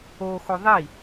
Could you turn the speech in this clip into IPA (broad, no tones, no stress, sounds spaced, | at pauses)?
o x o ðˤ i